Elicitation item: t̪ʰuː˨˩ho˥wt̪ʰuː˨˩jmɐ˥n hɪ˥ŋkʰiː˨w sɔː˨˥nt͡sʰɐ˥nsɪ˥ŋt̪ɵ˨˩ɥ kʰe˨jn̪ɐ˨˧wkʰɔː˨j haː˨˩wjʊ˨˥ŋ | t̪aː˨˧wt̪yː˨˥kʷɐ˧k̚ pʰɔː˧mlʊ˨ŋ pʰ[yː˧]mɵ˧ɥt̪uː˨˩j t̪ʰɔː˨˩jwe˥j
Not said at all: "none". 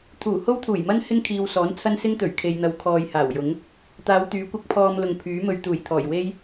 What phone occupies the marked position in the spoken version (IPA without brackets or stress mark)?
yː˨˥